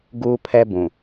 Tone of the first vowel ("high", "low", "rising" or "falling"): high